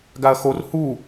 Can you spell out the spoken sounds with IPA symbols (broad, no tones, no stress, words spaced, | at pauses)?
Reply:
ɡaɐ̯xor hu